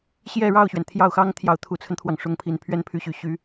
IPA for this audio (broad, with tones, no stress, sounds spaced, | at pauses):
ɕ j ɛ˥˧ ɻ ɑ˥˩ ʊ̯ ɕ ɥ ɛ˩ n t̪ʰ j ɑ˥˩ ʊ̯ x ɑ˥ ŋ t̪ʰ j ɑ˧˥ ʊ̯ t̪ʰ u˨˩ t͡sʰ ə˦ n t̪ʰ w ɑ˩ ŋ ʂ ʊ˧˥ ŋ pʰ i˨˩ n pʰ ɥ ɛ˥˩ n pʰ y˧˥ ɕ y˨˩ ɕ y˧˥